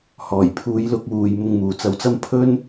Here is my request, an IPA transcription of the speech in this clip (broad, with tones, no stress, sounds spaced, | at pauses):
h ɔː˨˩ j pʰ uː˨˧ j l ʊ˧ k̚ w uː˨ j m ʊ˧ ŋ m uː˨ t͡s ɐ˧ w t͡s ɐ˥ m pʰ ɵ˥ n